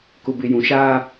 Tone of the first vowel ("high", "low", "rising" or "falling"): low